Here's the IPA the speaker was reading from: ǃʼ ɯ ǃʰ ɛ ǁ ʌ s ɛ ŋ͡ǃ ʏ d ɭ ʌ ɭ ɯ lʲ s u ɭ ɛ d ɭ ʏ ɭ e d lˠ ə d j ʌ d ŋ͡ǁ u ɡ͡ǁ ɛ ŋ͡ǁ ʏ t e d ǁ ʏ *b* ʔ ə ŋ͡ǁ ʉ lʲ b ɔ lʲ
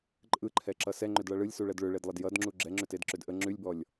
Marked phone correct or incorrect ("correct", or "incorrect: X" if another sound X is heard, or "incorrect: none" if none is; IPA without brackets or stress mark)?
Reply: incorrect: d